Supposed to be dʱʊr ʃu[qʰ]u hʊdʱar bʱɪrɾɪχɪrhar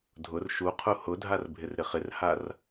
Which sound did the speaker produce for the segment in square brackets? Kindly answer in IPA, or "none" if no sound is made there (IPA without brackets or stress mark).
qʰ